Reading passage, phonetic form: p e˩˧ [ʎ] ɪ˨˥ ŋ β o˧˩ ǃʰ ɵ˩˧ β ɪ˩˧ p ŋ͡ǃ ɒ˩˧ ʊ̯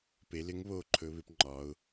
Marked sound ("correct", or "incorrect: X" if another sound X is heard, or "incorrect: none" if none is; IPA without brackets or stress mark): incorrect: l